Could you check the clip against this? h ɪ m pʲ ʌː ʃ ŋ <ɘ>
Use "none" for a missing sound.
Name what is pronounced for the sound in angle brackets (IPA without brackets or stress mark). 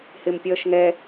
ɛ